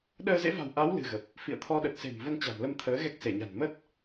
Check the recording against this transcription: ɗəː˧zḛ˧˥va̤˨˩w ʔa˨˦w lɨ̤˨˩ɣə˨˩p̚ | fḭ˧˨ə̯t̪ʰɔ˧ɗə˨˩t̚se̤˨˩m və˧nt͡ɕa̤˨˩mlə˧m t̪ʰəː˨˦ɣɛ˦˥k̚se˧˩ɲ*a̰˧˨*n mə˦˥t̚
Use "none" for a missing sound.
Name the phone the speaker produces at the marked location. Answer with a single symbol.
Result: a̤˨˩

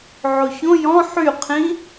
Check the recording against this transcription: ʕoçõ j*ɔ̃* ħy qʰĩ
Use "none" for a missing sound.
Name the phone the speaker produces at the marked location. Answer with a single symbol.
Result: ɔ̃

